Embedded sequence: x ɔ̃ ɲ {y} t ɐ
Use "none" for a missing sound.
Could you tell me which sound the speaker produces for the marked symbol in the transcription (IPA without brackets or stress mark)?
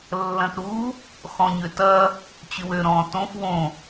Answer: ø